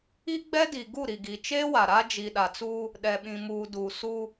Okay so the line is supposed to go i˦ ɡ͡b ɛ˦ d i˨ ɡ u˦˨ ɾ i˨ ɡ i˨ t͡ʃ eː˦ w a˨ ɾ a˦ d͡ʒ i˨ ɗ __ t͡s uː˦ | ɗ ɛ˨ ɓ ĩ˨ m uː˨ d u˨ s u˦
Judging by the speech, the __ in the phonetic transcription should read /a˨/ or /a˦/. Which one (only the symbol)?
a˨